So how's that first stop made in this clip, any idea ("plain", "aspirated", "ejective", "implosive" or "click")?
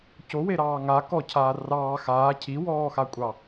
plain